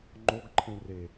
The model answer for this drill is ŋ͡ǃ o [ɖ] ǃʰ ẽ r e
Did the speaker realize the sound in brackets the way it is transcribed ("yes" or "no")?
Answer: no